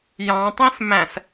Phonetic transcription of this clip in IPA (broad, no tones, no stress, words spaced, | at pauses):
jɑ̃tˤĩs mæ̃s